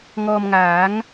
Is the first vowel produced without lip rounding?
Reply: no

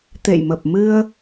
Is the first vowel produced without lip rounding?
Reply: yes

